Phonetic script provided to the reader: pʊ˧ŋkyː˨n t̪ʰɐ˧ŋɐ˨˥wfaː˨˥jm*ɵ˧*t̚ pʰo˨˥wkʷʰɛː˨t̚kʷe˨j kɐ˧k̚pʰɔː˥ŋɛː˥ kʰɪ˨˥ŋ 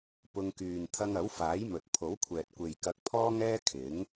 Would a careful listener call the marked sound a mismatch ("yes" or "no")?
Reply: yes